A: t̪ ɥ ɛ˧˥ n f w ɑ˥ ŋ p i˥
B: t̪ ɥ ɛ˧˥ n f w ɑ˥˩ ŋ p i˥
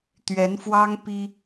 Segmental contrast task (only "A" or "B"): A